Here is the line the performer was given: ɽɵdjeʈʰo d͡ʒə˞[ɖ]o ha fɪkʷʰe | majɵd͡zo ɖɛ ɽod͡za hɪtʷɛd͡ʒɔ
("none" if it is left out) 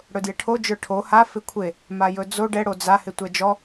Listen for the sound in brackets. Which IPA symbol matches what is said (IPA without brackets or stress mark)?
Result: ʈʰ